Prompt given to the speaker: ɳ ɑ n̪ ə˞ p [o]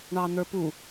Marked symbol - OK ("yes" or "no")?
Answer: no